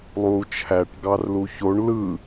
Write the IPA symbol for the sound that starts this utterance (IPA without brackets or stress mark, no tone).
lˠ